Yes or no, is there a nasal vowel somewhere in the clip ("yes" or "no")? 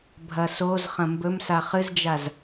yes